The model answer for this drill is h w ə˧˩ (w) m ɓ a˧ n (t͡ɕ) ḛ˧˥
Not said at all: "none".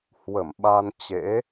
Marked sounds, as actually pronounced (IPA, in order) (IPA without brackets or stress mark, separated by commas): none, t͡ɕ